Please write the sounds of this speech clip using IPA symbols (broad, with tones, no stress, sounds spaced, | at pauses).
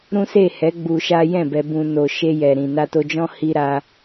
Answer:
ɾ ũ˦ s e˦˨ h ɛ˨˦ ɡ͡b u˧ ʃ a˦ j ɛ̃˦˨ b ɛ˨ b ũ˨ n o˨ ʃ e˧ j ɛ˨ ɾ ĩ˨ n a˧ t o˧ d͡ʒ ɔ̃˦ h i˧ ɾ a˧